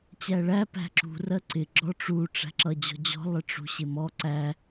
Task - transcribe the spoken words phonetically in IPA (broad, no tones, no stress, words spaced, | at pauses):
t͡ɕæɭæ pæ̤ǁṳ rɜǀɪ ɡ͡ǁɔʈ͡ʂu ʈ͡ʂæ̤ǁʌ d͡ʑɔ̤d͡ʑɔ̤ lˠɪʈ͡ʂṳɕɪmɔ ǀæ